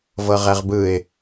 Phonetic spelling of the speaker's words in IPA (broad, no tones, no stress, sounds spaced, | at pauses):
v ɤ ʁ ɛ ʁ b ɯ ɪ̯